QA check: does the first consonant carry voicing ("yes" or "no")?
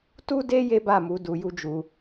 no